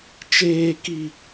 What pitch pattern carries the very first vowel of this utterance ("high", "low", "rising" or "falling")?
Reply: high